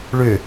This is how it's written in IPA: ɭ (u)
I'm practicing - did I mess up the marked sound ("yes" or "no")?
yes